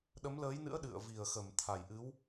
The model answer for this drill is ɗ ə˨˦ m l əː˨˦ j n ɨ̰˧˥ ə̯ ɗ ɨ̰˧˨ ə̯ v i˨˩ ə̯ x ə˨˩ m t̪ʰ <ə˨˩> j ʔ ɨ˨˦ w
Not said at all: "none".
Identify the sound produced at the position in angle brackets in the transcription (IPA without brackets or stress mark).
a˨˩